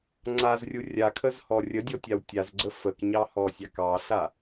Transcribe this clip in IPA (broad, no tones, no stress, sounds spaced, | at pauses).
ŋ͡ǀ a z rʲ u rʲ a kʰ ə z h ɔ rʲ ə dʲ ɔ tʲ a w tʲ a z ɡ͡ǀ ə f ə k ɲ ɑ h ɔ sʲ ɑ k ɑ ɬ a